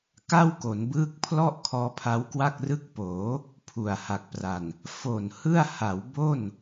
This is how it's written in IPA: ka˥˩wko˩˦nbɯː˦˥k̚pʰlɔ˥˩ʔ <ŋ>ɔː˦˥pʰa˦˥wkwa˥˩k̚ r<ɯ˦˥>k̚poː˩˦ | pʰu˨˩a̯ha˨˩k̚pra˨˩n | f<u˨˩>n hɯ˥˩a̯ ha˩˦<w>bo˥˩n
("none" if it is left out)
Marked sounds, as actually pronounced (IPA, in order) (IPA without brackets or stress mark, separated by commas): kʰ, ɯ˦˥, o˨˩, w